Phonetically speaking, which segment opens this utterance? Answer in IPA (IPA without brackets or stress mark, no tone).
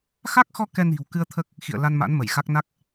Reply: x